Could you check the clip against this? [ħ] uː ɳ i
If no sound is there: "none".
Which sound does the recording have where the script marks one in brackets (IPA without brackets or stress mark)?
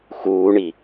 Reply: x